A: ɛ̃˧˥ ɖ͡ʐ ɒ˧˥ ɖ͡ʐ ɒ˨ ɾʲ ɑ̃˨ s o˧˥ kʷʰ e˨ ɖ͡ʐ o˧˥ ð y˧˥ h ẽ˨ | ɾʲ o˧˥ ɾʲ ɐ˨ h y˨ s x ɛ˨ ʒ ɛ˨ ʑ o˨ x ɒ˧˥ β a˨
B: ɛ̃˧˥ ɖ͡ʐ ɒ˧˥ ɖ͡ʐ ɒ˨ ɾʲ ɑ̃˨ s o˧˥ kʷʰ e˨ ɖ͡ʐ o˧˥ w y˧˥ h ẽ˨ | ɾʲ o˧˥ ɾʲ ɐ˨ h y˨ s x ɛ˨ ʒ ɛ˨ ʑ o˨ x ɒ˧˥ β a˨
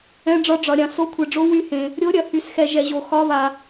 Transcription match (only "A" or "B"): B